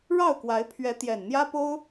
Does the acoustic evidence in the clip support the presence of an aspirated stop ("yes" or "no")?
yes